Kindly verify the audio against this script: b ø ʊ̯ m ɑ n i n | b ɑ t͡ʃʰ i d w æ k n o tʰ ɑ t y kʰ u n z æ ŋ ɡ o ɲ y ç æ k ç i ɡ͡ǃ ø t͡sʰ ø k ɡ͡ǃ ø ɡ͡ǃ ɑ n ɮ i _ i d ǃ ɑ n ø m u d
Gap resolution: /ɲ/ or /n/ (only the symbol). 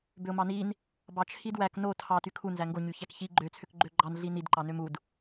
n